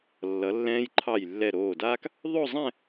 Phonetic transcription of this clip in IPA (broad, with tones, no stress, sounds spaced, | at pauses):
lː ʌ˩˧ lː ɛ̃ː˧ j ǃʰ ɑ˧˩ j lː ɛ˧˩ ɾ oː˧˩ d aː˥ k | ðˤ o˥˧ zˤ ɛ̃˥˧